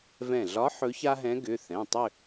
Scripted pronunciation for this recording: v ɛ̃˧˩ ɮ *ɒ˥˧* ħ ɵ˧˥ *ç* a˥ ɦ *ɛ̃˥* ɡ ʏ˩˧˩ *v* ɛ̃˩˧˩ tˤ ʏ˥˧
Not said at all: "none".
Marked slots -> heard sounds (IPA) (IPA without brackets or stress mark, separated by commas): ɒ˧˥, ç, ɛ̃˧˥, θ